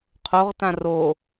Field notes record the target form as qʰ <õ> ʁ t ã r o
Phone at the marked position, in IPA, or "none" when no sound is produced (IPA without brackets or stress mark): o